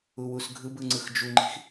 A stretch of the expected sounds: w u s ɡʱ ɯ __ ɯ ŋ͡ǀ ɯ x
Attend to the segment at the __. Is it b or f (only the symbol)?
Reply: b